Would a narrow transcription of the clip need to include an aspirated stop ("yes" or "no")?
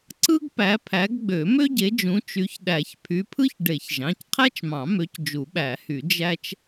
yes